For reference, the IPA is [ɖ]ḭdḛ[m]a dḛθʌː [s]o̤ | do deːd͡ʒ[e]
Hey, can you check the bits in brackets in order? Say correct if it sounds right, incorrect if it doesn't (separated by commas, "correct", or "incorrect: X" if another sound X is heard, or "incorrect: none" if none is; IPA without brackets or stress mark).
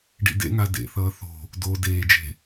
correct, incorrect: ŋ, incorrect: θ, incorrect: e̤